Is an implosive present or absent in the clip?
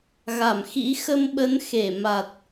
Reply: present